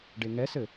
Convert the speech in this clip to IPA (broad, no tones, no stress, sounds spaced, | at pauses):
ɖ e ŋ ɛ s ɘ